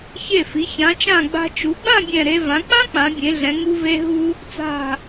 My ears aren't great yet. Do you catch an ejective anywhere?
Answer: no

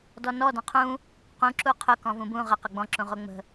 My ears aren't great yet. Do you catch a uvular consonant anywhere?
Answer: yes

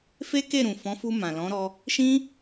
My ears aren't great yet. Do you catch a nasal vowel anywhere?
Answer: yes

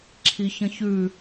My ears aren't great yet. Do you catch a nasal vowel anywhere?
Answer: yes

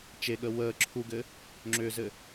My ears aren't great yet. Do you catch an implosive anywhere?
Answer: yes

